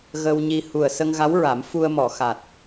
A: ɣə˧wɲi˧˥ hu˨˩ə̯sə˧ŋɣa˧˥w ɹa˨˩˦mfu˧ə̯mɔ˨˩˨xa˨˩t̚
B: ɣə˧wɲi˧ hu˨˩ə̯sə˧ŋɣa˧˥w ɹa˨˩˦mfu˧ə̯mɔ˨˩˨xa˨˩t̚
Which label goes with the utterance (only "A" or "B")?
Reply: B